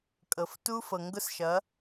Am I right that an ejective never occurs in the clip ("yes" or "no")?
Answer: no